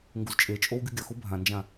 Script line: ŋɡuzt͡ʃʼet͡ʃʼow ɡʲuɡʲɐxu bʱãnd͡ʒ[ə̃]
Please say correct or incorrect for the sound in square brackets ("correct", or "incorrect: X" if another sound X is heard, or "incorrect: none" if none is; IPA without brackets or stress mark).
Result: incorrect: ã